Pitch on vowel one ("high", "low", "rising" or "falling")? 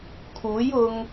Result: rising